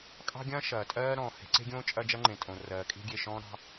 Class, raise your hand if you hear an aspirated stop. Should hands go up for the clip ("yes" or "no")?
no